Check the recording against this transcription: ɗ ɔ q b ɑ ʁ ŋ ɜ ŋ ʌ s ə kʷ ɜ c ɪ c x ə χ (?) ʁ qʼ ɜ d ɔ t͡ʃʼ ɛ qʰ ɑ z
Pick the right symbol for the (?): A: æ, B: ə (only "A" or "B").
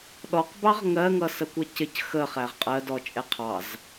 A